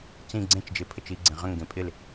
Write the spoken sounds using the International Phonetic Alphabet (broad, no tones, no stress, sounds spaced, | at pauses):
t͡s ĩ ɡ͡ǀ ẽ t͡ʃ d͡ʒ e pʰ ə t͡ʃ i ɡ͡ǀ ẽ ʁ ə̃ ŋ ɡ ẽ pʼ ɪ l